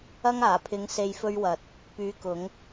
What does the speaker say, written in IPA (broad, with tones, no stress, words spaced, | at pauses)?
ɐ˧ŋaː˨˩pʰɪ˨˧ŋ se˨jfɵ˧ɥwɐ˨t̚ | pyː˨˥kʊ˨˧ŋ